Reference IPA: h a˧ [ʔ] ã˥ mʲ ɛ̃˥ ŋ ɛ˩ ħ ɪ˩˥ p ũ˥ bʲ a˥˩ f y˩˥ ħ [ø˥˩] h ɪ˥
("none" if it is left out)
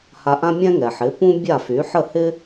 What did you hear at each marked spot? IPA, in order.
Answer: ʔ, ə˥˩

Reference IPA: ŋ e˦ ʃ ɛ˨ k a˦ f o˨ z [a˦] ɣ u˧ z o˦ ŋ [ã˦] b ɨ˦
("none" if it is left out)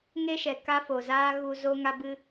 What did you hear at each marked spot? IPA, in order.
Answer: aː˦, a˦

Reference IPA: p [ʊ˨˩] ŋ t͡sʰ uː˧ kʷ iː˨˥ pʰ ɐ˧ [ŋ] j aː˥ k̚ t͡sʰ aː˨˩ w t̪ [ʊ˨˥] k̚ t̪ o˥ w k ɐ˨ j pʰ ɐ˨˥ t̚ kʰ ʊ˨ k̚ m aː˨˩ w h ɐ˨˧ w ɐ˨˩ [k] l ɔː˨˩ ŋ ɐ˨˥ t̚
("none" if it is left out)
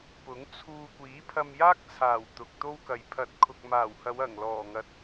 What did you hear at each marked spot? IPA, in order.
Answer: ʊ˨˥, m, ʊ˨, ŋ

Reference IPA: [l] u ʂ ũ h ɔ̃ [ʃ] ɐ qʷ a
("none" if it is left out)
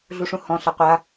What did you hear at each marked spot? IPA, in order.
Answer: ɮ, ɬ

